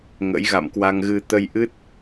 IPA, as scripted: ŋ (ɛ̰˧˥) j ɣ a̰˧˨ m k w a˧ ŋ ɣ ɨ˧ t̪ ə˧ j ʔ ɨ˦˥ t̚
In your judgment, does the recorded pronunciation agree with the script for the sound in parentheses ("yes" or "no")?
no